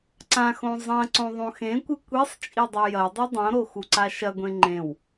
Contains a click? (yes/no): yes